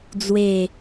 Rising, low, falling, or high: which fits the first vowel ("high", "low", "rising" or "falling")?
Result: falling